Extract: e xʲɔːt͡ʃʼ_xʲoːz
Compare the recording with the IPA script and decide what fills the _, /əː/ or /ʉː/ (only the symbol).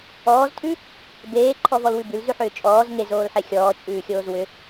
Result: ʉː